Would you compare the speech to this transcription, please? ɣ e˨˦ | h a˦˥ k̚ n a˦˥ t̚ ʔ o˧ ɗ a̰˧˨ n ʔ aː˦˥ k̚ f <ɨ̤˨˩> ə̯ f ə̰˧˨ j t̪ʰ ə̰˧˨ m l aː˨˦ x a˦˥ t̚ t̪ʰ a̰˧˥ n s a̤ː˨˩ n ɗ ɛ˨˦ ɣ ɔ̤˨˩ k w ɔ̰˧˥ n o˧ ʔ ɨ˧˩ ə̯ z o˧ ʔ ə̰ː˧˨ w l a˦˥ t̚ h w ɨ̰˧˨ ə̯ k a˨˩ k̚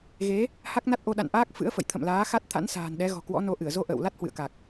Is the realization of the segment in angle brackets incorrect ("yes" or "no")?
yes